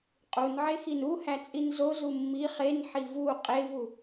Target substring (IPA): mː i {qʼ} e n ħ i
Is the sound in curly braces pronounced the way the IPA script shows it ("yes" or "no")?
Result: no